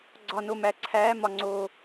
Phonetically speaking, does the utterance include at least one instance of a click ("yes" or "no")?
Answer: yes